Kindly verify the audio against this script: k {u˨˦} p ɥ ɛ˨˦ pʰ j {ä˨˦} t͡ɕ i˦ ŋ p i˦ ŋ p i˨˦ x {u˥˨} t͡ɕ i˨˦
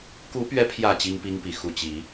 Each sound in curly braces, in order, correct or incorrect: correct, incorrect: ä˨˩, incorrect: u˨˩

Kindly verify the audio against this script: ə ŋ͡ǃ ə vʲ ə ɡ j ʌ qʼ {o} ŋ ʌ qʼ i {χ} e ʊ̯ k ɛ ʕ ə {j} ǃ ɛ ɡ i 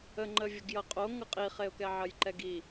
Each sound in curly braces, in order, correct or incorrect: correct, correct, correct

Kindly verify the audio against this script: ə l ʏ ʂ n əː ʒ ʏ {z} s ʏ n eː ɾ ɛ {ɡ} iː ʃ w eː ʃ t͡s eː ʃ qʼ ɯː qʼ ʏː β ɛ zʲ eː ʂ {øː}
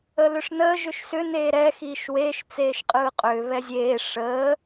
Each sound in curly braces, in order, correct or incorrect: incorrect: ʃ, incorrect: x, incorrect: əː

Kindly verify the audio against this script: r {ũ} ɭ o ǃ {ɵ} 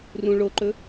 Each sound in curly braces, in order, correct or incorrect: correct, correct

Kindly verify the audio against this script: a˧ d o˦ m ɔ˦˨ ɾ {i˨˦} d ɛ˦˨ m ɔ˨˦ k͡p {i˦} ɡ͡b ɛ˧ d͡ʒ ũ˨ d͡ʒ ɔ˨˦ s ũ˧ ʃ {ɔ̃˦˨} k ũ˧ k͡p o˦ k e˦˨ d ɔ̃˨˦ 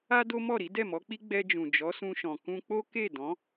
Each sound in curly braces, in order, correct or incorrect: correct, correct, incorrect: ɔ̃˨

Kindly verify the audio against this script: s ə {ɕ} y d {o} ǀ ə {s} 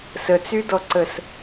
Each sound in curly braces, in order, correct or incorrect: incorrect: t͡s, incorrect: ɔ, correct

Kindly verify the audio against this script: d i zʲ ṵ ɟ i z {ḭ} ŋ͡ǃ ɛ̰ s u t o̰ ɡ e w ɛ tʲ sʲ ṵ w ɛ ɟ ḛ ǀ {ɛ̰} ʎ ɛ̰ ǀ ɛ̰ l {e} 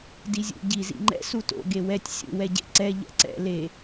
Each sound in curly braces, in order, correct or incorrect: correct, incorrect: ɛ, correct

